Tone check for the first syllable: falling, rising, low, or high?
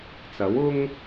rising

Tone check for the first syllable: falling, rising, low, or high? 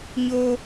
high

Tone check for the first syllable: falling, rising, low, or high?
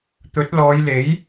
rising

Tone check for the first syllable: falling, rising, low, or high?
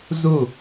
falling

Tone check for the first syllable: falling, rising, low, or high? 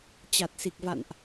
low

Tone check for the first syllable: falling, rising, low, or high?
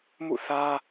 falling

